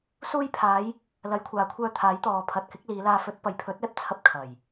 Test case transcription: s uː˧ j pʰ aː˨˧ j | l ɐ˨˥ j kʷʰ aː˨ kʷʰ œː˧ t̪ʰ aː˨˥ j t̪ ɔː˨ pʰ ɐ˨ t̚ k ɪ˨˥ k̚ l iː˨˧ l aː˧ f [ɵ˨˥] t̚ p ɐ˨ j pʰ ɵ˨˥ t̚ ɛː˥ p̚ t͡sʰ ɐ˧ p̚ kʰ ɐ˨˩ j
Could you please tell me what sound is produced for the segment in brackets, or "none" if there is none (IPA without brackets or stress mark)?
ɵ˨˥